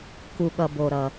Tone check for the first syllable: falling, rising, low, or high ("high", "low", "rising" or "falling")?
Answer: low